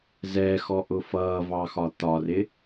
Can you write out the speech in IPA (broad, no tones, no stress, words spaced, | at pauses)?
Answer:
zɛxɔ ʔʊfʌːvɑ xɒt̪ɒrɪ